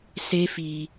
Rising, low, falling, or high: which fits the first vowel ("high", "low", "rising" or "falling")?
high